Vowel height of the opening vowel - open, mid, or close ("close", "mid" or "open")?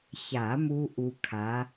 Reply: open